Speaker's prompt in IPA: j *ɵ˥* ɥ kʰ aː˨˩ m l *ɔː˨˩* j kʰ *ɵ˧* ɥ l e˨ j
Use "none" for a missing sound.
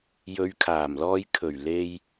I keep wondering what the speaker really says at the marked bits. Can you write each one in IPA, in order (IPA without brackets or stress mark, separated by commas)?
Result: ɵ˨˧, ɔː˧, ɵ˨˩